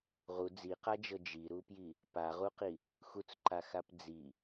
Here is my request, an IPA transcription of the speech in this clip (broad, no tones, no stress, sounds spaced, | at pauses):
ʁ u d͡z i q a d͡ʒ ɤ d͡ʒ i ɾ u p j i | p a ʁ u q i | x u t͡s ǃ a x a p d͡z i